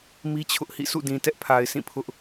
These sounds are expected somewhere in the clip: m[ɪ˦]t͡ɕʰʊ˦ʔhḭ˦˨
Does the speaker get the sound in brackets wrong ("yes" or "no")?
yes